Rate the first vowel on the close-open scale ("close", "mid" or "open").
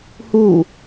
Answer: close